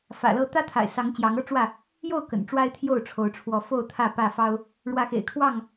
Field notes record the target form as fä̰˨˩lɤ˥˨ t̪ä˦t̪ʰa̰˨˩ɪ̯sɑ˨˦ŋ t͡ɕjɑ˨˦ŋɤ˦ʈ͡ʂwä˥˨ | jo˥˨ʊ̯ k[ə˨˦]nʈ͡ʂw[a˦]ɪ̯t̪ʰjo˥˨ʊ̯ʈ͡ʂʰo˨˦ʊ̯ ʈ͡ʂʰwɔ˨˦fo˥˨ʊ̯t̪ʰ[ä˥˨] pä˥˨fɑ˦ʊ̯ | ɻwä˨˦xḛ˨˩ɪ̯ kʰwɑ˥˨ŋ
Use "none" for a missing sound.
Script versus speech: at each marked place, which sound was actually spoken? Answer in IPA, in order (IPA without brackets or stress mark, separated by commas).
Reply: ə̰˨˩, a˦, ä˥˨